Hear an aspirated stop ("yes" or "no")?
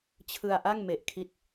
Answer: yes